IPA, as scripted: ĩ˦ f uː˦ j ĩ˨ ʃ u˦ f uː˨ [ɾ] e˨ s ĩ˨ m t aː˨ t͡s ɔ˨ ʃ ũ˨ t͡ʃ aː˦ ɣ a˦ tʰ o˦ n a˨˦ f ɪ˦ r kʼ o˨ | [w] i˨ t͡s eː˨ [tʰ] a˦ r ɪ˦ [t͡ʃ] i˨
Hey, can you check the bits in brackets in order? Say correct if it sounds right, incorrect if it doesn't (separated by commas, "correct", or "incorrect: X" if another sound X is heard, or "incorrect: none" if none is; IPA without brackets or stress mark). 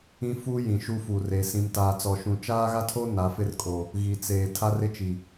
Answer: incorrect: r, incorrect: ɣ, correct, correct